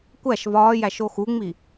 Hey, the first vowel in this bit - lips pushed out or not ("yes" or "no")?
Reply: no